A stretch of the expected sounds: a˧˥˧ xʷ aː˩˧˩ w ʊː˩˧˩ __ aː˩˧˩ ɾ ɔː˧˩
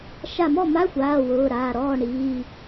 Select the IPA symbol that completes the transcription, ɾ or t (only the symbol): ɾ